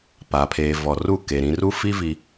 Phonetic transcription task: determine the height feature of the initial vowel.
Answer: low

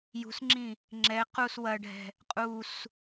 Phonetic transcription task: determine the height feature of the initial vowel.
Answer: high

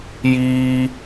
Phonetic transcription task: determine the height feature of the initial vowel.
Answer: high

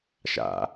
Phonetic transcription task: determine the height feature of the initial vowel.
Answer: low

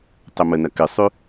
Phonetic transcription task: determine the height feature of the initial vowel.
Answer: mid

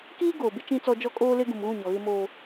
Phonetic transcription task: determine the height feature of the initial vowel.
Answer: high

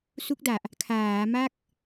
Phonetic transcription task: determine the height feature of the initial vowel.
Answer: high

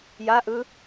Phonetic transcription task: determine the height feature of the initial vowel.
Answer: low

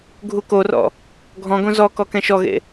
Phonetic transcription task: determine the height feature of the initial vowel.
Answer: high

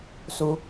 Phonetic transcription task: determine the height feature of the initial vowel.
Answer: high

